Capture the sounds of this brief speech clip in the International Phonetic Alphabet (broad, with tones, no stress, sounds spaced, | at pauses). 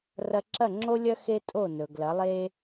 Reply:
r ɐ˧ ǁ ɐ˥˩ ŋ͡ǁ o˥ lʲ ɐ˥ x e˥ tʼ o˥˩ n ɵ˩ ɡ l ɐ˩˥ lˠ e˥